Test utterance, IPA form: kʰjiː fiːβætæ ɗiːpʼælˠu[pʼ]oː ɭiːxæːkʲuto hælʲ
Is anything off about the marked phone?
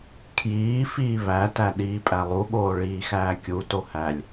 yes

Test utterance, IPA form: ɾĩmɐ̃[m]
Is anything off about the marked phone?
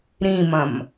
no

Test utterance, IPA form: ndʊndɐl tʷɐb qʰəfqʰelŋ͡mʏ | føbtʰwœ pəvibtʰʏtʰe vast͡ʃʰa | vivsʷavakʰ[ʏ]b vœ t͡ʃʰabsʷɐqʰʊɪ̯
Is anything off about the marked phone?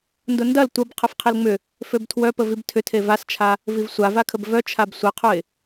yes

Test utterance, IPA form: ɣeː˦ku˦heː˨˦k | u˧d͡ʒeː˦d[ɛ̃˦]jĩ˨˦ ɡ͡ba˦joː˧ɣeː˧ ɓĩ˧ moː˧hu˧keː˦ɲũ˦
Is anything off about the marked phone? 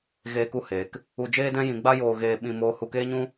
no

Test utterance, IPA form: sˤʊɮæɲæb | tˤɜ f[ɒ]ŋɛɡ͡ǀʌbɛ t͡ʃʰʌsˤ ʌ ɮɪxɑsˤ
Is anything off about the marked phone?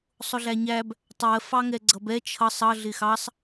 yes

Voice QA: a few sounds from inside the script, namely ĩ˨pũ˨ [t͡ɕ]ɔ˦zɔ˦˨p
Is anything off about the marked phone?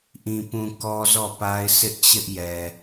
yes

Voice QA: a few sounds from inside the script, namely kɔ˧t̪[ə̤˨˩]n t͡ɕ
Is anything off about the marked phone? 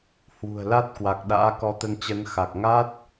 yes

